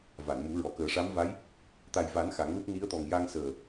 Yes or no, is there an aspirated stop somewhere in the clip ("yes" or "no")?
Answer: no